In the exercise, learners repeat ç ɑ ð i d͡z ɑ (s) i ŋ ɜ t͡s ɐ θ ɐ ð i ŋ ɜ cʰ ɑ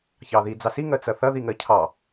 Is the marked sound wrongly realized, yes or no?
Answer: no